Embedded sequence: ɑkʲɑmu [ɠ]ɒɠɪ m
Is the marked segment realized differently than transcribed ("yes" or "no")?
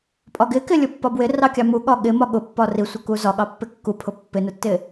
no